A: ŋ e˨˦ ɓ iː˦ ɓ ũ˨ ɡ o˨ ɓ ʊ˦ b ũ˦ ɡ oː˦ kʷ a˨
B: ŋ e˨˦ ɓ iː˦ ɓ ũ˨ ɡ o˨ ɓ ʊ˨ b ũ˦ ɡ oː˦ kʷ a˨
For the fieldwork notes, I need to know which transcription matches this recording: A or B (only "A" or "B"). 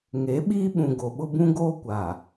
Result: A